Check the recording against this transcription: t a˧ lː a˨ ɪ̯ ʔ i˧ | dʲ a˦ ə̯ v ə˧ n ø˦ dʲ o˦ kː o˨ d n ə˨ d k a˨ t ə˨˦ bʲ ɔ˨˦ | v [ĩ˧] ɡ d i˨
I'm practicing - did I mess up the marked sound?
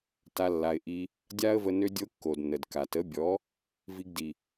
yes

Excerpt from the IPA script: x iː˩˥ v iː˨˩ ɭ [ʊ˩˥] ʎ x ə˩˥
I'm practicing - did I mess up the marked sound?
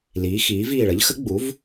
yes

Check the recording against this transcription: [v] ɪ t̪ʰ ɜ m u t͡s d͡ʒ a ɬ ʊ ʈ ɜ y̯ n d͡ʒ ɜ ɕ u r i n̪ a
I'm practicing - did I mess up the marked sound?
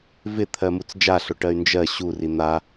no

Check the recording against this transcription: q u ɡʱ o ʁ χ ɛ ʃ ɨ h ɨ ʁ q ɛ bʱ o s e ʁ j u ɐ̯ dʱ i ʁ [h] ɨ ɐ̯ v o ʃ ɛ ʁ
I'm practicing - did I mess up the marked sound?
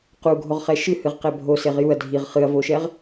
yes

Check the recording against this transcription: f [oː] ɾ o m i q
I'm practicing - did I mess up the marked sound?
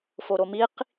yes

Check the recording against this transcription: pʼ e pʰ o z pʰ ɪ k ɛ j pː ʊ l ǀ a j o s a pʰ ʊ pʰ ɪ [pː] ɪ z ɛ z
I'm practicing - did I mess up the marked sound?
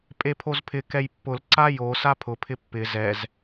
no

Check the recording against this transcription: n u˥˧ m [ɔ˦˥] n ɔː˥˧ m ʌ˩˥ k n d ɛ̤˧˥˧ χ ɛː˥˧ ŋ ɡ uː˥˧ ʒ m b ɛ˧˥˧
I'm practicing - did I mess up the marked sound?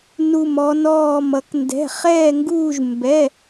no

